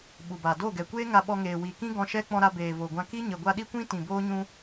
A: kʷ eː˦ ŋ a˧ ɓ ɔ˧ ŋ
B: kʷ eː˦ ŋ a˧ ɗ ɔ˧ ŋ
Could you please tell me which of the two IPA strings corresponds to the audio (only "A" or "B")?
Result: A